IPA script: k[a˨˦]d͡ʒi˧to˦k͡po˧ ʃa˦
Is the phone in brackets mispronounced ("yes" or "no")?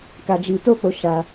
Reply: yes